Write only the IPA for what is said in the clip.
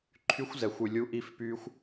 ǃʰ y˦ xʷ z ɛ˧ xʷ y˧ lʲ u˦ ʔ i˦ f p y˦ xʷ

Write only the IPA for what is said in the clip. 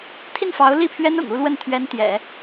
t̪ʰ i˥˩ n f ɑ˧˥ ʊ̯ l i˥˩ pʰ ɥ ɛ˥ n ʊ̰˨˩ ŋ u˥˧ l w ə˥˩ n t̪ʰ ɥ ɛ˧˥ n t̪ j ɛ̰˨˩˦

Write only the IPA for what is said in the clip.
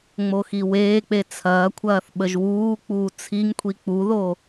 ŋ͡m o x i w eː k͡p e t͡sʰ ɐː kʷʰ ɐː θ ɓ ə ʒ w uː k͡p uː t͡sʰ i ŋ kʷʰ i k͡p u ð o

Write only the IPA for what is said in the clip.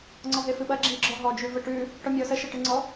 ŋ͡ǀ ɔ ɦ e f ɨ ɓ ɐ ɡ͡ǁ i ɡ͡ǁ ɔ ɦ ɔ d͡ʒ ʉ v ə ʈ ʉ | ʈ ɔ mʲ ɔ s ə ʃ ɐ ʈ ɨ ŋ͡ǀ ɔ

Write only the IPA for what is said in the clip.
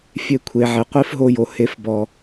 fʲ e˧ kʷʰ e˨ ʕ e˨ qʷ i˦ f ɦ o˧ j o˨ h e˨˦ f b ɔ˨

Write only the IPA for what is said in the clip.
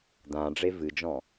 d ã ɖ͡ʐ e v ɨ d͡ʒ ɔ̃

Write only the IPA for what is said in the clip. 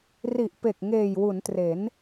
r i˨˩ ʔ p e˨˩ k̚ ŋ eː˨˩ j w u˩˦ n t r e˩˦ n

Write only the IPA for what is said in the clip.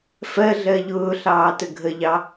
f ɜ ɮ ɜ ʎ ʊː ɬ ɑː t ə ɡʱ ə ʎ ɑ

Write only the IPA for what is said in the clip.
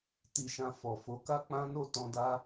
t i˨ ʃ ã˨ f ɔ˨ f o˨˦ k a˦ k͡p ã˦ n o˦˨ t ɔ̃˧ d a˦

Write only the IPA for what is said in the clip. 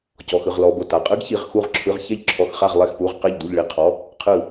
c ɔ˩˧˩ x ɯ˩˧˩ ʁ l ɔ˩˧˩ b o˧˩ t a˩˧˩ qʼ ɯ˧˥ ɡ ç i˩˧˩ ʁ x u˧˩ ʁ ǁʰ ɯ˩˧˩ ʁ ç ɛ˧˩ ʎ ǁʰ ɔ˩˧˩ x χ a˧˩ ʁ lˠ ɛ˧˩ x p u˩˧˩ ʁ q ɛ˧˩ ʎ d u˧˩ ʎ ɭ i˧˩ qʰ ɔ˩˧˩ | qʰ ɯ˧˩

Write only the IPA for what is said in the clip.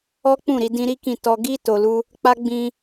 ɔ˦ k͡p ũ˦˨ ɾ i˧ d ĩ˦ ɾ i˦ k ĩ˦˨ t ɔ˧ ɡ i˦ t o˧ l u˦ | k͡p a˦ ɡ͡b ĩ˧

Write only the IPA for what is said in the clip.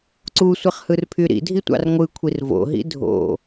ǀ u sʷ i χ h ɯ r pʰ y ɾ ḭ dʱ i tʷ ɑ̰ r ŋʷ ɯ kʷʰ i r v o̰ ɦ ḭ dʱ o̰

